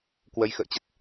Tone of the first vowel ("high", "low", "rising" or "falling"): rising